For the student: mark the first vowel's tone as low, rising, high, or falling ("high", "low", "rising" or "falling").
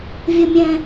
low